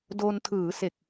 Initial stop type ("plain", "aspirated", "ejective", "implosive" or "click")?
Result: plain